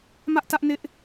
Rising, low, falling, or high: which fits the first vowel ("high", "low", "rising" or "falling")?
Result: high